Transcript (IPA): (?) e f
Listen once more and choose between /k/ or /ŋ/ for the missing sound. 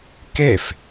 k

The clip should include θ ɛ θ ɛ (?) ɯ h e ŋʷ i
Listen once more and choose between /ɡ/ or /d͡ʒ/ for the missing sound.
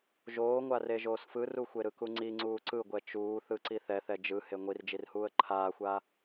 d͡ʒ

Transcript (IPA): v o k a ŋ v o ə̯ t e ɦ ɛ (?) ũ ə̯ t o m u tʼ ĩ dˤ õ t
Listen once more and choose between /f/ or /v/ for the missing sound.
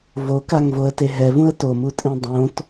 v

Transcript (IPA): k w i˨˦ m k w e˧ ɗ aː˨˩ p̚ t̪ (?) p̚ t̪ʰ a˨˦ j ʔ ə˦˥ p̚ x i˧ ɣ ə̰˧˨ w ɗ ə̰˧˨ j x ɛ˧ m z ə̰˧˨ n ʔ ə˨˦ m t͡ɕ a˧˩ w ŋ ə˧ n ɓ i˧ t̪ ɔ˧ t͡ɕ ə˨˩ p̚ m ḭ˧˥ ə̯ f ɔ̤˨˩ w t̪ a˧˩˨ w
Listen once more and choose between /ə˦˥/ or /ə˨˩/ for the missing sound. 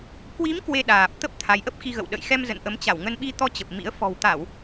ə˦˥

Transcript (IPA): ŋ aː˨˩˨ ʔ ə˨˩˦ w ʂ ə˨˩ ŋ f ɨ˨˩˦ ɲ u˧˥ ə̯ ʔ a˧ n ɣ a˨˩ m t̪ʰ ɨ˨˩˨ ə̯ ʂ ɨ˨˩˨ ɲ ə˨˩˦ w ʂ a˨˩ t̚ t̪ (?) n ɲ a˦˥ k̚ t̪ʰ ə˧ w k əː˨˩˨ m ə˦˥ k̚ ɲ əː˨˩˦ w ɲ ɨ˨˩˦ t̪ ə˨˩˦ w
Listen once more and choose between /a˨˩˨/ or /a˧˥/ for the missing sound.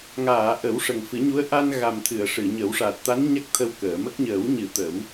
a˧˥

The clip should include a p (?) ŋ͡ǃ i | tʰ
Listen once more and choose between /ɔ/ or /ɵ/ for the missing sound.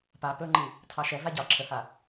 ɵ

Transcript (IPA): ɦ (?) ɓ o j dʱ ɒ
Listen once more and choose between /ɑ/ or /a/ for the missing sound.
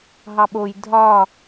ɑ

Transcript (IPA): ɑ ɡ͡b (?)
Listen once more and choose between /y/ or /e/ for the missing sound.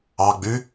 y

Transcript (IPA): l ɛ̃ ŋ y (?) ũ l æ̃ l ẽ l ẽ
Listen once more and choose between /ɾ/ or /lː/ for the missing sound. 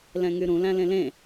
ɾ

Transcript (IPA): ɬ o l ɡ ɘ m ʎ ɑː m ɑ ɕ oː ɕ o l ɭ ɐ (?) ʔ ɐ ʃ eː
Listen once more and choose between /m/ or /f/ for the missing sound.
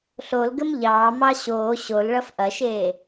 f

